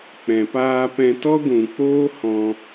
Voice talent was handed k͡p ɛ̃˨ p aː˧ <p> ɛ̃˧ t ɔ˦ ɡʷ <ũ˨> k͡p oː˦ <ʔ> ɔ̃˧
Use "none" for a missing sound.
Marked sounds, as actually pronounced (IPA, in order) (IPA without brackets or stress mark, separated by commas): p, ũ˨, h